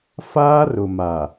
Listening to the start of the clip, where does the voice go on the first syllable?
high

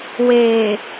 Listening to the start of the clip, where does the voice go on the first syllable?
low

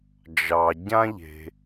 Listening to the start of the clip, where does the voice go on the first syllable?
low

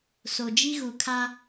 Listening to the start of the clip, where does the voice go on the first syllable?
low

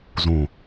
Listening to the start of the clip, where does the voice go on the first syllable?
low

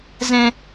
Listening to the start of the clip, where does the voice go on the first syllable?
high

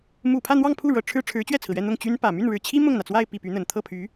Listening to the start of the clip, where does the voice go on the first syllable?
low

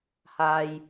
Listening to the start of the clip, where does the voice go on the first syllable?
low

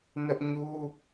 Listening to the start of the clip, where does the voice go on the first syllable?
high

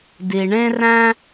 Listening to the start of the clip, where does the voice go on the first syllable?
low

